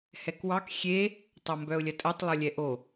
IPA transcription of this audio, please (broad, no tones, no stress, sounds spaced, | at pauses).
h ɛ k w ɑ k xʲ e | tˤ ɐ m b œ ʊ̯ lʲ ɐ tʼ ə tˤ lˠ o lʲ ɛ ʔ o